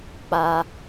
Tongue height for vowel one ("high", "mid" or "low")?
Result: low